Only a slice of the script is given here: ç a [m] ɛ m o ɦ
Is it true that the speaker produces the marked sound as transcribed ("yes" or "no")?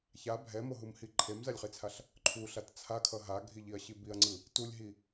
no